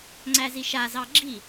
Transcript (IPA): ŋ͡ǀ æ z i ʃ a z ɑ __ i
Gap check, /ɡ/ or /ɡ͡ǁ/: ɡ͡ǁ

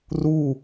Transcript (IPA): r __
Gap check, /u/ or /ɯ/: u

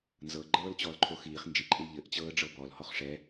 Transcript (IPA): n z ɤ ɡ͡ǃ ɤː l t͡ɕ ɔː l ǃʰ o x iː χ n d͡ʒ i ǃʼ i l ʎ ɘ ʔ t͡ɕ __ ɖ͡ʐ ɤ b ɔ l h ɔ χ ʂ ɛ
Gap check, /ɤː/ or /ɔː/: ɤː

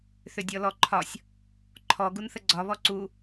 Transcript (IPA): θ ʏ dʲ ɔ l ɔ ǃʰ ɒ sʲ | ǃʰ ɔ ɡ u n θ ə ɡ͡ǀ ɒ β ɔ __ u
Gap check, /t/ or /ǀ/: ǀ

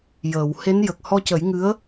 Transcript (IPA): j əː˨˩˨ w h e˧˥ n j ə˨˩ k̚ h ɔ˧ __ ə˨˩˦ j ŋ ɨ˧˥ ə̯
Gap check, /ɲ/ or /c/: c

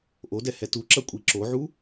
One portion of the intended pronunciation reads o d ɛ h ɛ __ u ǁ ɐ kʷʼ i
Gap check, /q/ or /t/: t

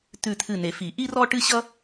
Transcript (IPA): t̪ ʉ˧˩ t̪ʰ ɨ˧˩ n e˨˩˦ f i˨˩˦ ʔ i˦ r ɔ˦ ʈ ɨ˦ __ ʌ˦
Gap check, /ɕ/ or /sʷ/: ɕ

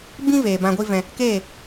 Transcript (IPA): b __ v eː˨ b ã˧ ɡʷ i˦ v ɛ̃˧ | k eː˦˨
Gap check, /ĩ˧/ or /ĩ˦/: ĩ˦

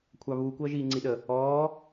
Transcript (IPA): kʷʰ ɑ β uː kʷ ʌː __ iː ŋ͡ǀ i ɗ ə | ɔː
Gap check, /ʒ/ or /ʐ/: ʒ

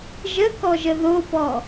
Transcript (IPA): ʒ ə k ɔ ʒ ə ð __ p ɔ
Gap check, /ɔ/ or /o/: o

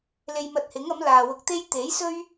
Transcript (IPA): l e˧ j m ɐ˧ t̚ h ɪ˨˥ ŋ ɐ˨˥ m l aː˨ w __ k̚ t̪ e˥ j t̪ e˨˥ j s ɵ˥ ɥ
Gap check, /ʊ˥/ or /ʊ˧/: ʊ˧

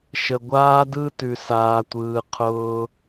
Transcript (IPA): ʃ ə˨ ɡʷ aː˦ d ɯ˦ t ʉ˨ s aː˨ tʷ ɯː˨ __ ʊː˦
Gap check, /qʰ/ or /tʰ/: qʰ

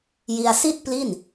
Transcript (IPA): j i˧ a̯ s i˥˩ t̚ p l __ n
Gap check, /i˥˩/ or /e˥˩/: i˥˩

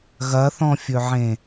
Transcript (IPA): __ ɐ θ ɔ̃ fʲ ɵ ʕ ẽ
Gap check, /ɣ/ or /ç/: ɣ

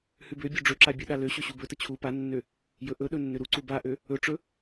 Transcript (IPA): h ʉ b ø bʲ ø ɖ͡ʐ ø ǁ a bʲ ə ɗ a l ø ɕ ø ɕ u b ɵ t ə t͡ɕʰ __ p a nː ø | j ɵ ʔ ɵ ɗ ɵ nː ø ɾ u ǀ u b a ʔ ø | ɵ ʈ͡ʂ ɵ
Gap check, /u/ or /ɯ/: u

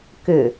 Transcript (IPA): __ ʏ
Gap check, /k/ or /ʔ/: k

